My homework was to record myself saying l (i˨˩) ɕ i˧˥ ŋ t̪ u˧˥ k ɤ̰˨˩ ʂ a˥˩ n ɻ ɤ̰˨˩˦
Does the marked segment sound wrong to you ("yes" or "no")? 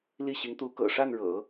yes